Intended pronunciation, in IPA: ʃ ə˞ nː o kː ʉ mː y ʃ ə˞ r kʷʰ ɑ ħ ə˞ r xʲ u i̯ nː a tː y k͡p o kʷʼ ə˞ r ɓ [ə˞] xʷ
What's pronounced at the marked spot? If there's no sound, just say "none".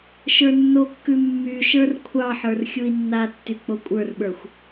ə˞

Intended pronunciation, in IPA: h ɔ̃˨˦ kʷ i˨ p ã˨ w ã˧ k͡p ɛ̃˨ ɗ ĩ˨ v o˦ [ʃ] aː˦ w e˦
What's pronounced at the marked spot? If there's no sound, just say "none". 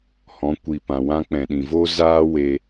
z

